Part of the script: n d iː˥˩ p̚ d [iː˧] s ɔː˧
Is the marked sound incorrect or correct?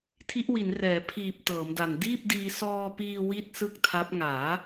correct